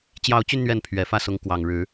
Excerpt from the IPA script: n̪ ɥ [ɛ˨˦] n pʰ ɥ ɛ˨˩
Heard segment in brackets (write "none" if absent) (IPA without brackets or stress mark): ɛ˨˦